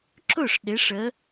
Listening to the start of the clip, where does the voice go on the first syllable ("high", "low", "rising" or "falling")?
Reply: falling